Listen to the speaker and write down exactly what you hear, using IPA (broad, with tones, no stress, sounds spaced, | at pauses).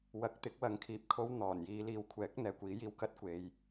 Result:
w ɐ˨ k̚ t̪ ɪ˨˥ k̚ w ɐ˨˥ ŋ kʰ iː˨ p̚ kʰ o˥ w n̪ ɔː˨˩ n j iː˨˧ l iː˨ w kʷʰ ɛː˨˥ k̚ n̪ ɛː˨ kʷ iː˨˥ j iː˧ w k ɐ˥ t̚ kʷ e˧ j